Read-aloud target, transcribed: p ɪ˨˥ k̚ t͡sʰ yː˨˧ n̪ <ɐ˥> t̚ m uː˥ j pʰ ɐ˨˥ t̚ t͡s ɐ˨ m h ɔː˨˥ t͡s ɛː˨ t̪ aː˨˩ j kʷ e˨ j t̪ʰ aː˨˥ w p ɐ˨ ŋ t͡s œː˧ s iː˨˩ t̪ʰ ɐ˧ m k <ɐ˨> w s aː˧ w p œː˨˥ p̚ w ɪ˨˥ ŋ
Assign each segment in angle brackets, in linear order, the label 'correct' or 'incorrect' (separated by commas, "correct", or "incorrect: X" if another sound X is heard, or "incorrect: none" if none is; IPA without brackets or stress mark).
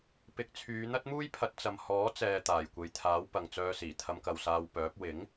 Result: correct, correct